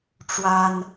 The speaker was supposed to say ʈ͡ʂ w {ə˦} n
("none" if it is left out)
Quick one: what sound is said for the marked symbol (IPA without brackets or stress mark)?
a˦